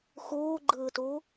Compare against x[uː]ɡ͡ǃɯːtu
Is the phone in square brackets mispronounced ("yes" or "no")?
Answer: no